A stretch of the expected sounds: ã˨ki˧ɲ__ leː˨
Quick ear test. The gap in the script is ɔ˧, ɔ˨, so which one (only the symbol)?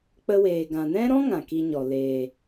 ɔ˨